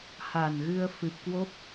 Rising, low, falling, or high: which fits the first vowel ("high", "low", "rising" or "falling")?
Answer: low